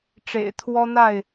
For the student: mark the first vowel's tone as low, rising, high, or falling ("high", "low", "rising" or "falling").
low